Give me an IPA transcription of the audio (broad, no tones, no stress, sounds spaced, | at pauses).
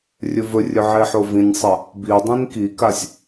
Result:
rʲ ɵ v ɵ rʲ ɵ ʕ e ħ o v ĩ nʲ sˤ ɐ | b i dˤ ĩ n k i k a sʲ